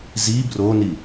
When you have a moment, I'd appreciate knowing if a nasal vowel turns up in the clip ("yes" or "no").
no